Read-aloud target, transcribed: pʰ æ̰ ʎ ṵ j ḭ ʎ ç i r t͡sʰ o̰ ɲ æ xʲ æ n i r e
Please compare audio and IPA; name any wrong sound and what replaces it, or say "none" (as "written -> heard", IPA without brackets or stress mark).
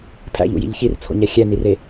none